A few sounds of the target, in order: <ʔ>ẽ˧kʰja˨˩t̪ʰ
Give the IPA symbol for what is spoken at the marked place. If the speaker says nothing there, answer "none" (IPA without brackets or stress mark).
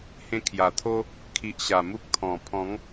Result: h